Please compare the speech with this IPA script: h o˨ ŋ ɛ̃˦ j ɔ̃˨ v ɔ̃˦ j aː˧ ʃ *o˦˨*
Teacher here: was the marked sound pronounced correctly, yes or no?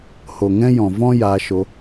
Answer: no